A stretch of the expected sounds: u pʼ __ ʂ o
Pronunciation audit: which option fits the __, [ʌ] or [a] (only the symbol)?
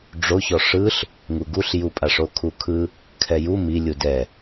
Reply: a